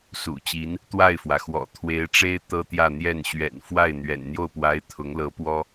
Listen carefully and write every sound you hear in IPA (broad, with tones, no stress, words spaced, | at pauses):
sṵ˨˩t͡ɕi˧˥n | t̪wa˥˩ɪ̯fwä˩xwɔ̰˨˩ t̪ʰwe˧˥ɪ̯ʈ͡ʂe˥ɪ̯ t̪ɤ˥t̪jä˥˧n̪jɛ˥˩n ɕɥɛ̰˨˩nfwa˥˩ɪ̯n̪ɥɛ̰˨˩n n̪jo˥˩ʊ̯pwa˧˥ɪ̯ t̪ʰʊ˧˥ŋ lɤ˧˥pwɔ˥